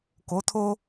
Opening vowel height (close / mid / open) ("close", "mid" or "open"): mid